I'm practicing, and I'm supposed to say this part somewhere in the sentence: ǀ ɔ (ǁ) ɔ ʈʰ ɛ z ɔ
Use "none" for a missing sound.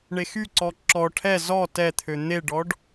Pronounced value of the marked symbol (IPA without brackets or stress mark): ǁ